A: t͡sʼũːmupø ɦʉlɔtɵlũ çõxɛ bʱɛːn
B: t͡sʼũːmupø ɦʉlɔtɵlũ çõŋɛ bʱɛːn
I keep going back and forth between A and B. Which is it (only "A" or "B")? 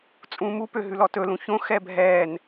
A